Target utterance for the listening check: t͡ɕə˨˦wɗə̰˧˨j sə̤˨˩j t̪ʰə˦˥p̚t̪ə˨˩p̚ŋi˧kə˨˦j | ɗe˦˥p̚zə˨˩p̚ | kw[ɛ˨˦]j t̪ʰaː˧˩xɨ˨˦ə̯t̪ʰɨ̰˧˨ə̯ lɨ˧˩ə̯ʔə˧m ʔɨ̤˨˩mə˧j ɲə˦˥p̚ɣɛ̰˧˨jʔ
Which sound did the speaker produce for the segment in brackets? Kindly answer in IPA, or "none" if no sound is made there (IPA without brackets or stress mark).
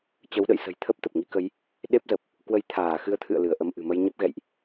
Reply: ə˨˦